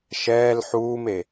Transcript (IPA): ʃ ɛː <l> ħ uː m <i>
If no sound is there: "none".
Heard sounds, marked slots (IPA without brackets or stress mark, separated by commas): l, e